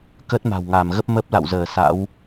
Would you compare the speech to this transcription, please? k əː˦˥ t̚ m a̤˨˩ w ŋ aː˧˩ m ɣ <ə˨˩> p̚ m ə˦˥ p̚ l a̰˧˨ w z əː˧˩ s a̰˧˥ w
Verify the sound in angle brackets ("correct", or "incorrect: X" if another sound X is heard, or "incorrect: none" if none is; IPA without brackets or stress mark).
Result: incorrect: ə˦˥